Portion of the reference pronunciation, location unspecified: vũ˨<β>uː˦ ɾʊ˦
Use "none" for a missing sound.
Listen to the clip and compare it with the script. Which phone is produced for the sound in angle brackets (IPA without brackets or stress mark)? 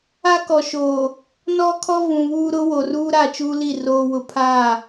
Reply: β